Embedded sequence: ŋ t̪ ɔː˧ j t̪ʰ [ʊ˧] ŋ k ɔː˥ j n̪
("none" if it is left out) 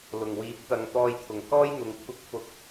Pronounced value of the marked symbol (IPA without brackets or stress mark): ʊ˨˩